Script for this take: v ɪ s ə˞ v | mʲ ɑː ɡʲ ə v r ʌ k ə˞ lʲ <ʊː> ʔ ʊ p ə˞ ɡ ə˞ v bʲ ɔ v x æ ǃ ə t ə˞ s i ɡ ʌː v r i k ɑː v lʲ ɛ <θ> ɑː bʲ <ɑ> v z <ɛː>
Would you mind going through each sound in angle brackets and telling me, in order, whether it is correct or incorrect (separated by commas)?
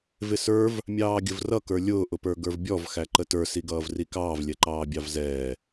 correct, incorrect, correct, correct